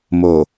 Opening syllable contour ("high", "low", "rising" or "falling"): low